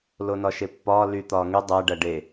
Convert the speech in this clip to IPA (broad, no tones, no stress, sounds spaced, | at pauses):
l o n ɒ ʃ e pː ɒː l y t̪ ɒː ŋ y dˤ æ ɖ æ ɖ e